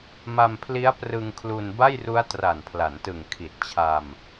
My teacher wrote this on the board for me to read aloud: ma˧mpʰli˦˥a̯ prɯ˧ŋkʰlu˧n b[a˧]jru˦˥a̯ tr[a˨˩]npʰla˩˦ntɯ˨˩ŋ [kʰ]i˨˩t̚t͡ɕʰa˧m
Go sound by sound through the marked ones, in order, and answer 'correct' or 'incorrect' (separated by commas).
incorrect, correct, correct